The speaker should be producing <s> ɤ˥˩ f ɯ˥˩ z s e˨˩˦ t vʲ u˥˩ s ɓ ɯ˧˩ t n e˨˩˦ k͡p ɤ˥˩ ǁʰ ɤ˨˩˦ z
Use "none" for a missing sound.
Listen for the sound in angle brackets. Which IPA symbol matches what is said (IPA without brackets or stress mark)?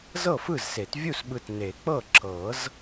z